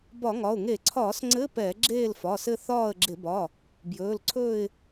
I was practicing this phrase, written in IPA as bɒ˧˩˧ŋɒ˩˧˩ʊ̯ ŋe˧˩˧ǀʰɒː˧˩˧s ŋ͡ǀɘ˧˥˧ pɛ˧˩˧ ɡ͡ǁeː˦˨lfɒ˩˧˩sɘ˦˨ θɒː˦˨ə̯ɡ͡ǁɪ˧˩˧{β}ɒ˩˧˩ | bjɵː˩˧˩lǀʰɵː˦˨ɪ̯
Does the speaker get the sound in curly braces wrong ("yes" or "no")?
yes